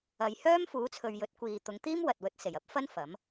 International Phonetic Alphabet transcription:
ɐ˨ j h œː˥ m f uː˨˥ t͡sʰ ɵ˨ ɥ j ɵ˨˥ t̚ kʷ iː˨ t̪ ʊ˨˧ ŋ t̪ iː˥ m w ɐ˨ t̚ w ɵ˧ t̚ s e˨˩ j ɐ˥ p̚ f ɐ˥ n f ɐ˨˥ m

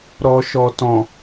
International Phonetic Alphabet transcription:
ɾ ɔ˨ ʃ ɔ˨ t ɔ̃˨

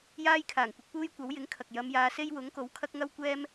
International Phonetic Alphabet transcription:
j aː˥ j kʰ aː˨˩ ŋ kʷ ɪ˧ k̚ p uː˥ j kʷ ɐ˨˥ w j ɪ˨˥ ŋ kʰ ɐ˨ k̚ j ɐ˨˧ m j aː˨˧ s e˥ j w ʊ˨˥ ŋ k o˨˥ w kʰ ɐ˥ k̚ ŋ ɐ˥ w kʷ ɛː˥ m

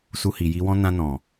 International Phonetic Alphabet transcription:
s u˧ h i˨ j i˧ w ɔ̃˦ n ã˧ n ɔ̃˨

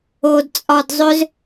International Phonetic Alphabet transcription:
o d t͡sʼ ɒ d zˤ ø z

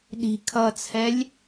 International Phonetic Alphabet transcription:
ɗ i̤ kʰ ʌ t͡sʰ ɛ lʲ

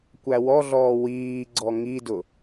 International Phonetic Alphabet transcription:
kʷ æ w ɔ ɮ ɔː w iː ɡ͡ǀ ɔ ŋ i d ʊ

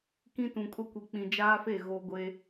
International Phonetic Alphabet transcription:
k ĩ˦ t ũ˨ kʼ ʊ˦ kʷ i˨ k͡p ĩ˨ d͡ʒ aː˦ f e˦˨ ɣ o˦ ɡʷ e˦

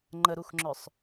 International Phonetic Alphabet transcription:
ŋ͡ǃ ə ɾ u x ŋ͡ǁ œ sˤ

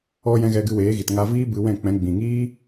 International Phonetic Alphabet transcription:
ɔ˧ j ɛ̃˧ ɣ ɛ˧ ɡ ɨ˧ w eː˨˦ ɣ i˨ t ŋ a˧ v iː˦ b ɨ˧ w ɛ̃˦˨ k͡p ɛ̃˨˦ ɡ͡b ĩ˨ ŋ iː˦

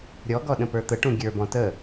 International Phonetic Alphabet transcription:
ɾʲ ɔ ɡ ɔ ɗ ə̃ p ə˞ t̪ ə ʈ ũ ɡʲ ə˞ b ɔ̃ t ə

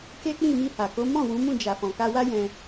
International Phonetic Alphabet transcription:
k e˦ k͡p ĩ˦˨ m i˧ h a˨ k o˨˦ m ɔ̃˦˨ w ũ˨˦ m ũ˦˨ d͡ʒ a˨ f ɔ̃˨ k a˧ w a˦ j ɛ̃˧

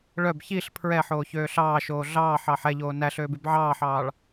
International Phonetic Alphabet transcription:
ɭ œ b ç i ɬ pʰ ɹ ɛ ħ oː ç øː ɬ ɑː ʃ oː ɮ ɑː ħ ɑː ħ ɛ ʎ oː n æ ɬ øː b y b ʕ ɑː ħ ɑː ɭ

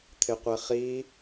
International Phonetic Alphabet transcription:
t̪ʰ ɪ qʷ e χ i

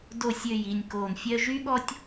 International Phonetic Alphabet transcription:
d o˨ sʲ ø˨ j i˨ nʲ k oː˨ n fʲ œ˧ ʒ y˦ ɠ ɔ˦ tʲ

